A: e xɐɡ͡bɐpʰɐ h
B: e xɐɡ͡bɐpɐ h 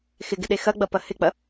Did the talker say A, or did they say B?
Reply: B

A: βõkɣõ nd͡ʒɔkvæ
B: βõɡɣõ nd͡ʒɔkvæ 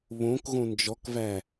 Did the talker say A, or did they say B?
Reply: A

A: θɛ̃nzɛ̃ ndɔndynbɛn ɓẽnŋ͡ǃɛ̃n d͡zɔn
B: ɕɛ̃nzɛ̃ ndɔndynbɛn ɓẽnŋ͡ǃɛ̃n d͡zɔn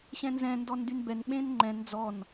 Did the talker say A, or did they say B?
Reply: B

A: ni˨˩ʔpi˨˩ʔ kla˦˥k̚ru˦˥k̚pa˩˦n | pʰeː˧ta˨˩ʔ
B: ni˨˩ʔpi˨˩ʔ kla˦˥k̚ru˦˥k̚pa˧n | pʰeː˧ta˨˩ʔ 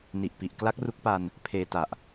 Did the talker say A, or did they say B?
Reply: B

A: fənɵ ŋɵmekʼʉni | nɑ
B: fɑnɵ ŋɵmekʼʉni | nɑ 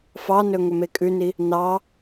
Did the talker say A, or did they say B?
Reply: B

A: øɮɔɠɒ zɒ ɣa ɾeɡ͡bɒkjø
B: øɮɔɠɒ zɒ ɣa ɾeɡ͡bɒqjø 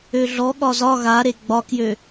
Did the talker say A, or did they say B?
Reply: A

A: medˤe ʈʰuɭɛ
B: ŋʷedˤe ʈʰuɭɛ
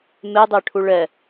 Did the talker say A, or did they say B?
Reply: A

